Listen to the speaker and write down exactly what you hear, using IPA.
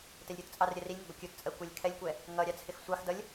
tɛlʲɾʲutt͡sʼɑr ɾʲɜrilʲŋɪ ɡʷəkʲutt͡sʼɜ kʷɜlʲkʰɛlʲkʷɛ | ŋʌ ɾʲɑt͡sʰɪxsʷɑxdʌlʲ

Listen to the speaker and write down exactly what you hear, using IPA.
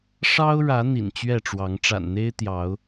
ʂɑ˦ʊ̯ɻä˨˦ n̪ḭ˨˩nt͡ɕɥɛ˥˨ʈ͡ʂwɑ˨˦ŋ ʈ͡ʂa̰˨˩nn̪e˦ɪ̯t̪jɑ˨˦ʊ̯

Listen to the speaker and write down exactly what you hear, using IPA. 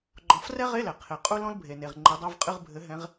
ɡ͡ǃɔ̃˨˦frɛ˥ ʁe˧˥˧lɛ˩ qʰe˩ qʼu˥lɔ̃˥l bʱe˩ne˩ʁ ŋ͡ǃe˨˦dˤo˧˥˧vqʼɨ˧˥˧ʁ bʱɘ˨˦ ɦɛ̃˨˦ʁ

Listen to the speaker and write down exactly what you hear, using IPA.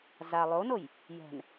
za lˠonoj | jɛ̤n

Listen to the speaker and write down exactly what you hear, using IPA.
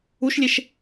uʃlʲeʃ

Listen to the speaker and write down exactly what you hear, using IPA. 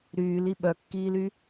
ɾyːli ɓœkːiːly

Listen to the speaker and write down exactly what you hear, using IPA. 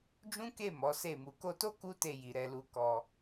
d͡ʒũ˦ke˦˨ mɔ˨˦se˦˨ mu˨ko˧to˦ ku˦te˧ji˨ ɾɛ˧lu˧kɔ˧

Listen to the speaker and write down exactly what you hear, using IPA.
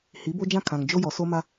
hi˨˦bo˦d͡ʒã˦ kʰã˨ŋd͡ʒo˦jɔ˨ so˦ma˦

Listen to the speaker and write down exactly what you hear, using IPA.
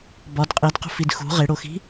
bɒd qʼidqṳfid xṳ ʁeɽoxi̤

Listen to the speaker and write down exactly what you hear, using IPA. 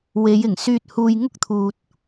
we˨˧jɪ˨˩ŋ syː˨t̚ huː˨j ŋʊ˥k̚t̪ʰuː˨t̚

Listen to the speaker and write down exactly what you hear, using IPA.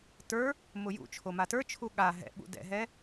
tə˞ | mʊjṵt͡ʃʰo matə˞t͡ʃʰu ɠa ɦɛ̰ɓṵ dɛ̰ɦɛ

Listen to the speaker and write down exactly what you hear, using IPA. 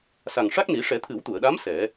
sa˨˩ŋʂa˦˥k̚ni˨˩˦ ʂɛ˨˩˦t̪ʰɨ˨˩˦wt̪u˨˩˨ə̯ɗa˧˥m sɛ˨˩˦

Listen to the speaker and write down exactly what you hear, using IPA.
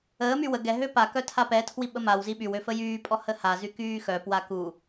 əːmy wə ɡɛɦø pakœ tʰapɛtʰwi ɓəmawzi ɓywø fəjyːpʼɔ həhazy kyːxœpwa ku

